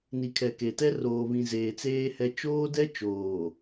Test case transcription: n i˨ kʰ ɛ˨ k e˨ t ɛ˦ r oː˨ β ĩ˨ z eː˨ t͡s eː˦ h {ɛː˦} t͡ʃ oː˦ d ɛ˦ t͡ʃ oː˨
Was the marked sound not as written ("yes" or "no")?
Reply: yes